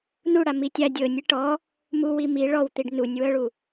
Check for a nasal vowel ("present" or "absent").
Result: absent